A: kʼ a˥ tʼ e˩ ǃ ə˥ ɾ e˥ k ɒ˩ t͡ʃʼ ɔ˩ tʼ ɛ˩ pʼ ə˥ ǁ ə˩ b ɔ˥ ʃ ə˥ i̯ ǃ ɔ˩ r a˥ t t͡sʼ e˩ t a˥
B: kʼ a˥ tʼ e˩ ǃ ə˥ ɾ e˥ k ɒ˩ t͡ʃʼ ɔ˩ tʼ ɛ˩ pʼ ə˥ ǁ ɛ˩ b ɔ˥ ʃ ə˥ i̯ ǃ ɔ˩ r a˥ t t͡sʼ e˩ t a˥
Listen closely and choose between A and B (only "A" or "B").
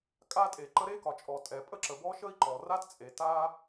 A